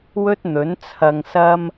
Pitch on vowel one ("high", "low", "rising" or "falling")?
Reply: high